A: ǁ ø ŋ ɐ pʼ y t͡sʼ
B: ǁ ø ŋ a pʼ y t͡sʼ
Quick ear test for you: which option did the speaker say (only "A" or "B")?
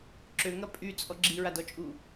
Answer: A